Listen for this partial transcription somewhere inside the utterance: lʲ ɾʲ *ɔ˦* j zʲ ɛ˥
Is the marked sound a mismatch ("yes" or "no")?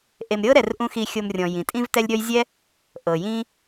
no